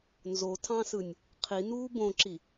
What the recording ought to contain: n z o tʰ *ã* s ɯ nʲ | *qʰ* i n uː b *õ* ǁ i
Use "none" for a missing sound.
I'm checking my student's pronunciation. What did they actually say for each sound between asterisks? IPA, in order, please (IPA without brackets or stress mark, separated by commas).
ɑ̃, qʰ, õ